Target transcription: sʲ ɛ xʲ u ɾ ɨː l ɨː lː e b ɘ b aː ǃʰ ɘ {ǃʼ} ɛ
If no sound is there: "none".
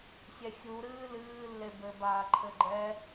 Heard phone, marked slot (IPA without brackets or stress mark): ɡ͡ǃ